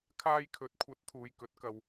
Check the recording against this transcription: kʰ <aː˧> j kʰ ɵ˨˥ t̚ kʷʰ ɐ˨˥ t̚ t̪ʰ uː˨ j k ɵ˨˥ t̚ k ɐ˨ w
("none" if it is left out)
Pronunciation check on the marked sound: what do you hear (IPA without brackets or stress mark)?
aː˧